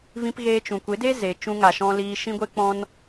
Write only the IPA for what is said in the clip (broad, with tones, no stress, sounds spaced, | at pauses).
v ĩ˧ p ɣ eː˧ t͡ʃ ũ˨ kʷ e˨˦ d e˦ z e˨ t͡ʃ ũ˧ ŋ a˨ ʃ ɔ̃˧ l iː˧ ʃ ĩ˦ ɡʷ e˦ k͡p ɔ̃˦ n